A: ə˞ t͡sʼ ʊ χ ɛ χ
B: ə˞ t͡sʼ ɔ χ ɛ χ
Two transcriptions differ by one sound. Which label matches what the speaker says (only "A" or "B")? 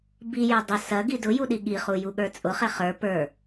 A